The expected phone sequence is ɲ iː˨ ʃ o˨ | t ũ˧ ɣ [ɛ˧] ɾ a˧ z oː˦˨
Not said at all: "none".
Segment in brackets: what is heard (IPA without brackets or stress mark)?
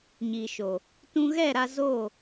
ɛ˦˨